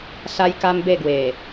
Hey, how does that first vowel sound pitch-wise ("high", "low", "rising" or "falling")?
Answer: high